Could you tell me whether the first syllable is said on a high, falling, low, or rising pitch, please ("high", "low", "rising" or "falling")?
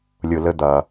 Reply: low